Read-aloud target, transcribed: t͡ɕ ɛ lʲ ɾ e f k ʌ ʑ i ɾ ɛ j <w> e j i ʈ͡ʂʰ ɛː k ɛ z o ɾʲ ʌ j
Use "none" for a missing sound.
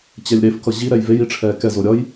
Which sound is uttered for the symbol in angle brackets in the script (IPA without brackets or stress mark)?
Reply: v